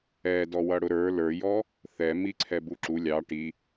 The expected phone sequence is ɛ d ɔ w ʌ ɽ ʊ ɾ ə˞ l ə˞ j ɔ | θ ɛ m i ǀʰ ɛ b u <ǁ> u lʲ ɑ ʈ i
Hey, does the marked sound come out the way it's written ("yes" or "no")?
yes